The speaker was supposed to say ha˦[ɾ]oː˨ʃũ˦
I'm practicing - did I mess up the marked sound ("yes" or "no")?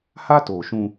yes